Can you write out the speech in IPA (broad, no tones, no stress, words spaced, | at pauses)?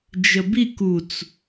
d͡ʒəbik ut͡s